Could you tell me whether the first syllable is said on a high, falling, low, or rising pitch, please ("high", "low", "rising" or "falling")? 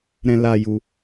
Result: high